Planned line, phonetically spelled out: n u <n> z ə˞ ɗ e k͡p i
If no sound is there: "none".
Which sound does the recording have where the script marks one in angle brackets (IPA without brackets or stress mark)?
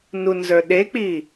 n